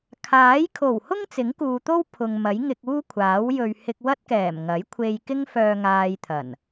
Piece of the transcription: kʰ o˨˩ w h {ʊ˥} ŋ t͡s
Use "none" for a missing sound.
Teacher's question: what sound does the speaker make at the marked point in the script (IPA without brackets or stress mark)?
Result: ʊ˥